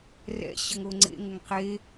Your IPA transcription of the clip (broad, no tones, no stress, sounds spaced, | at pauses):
r ɛ̰ ɕ ə ŋ o ŋ͡ǀ ḛ ŋ ə ŋ q e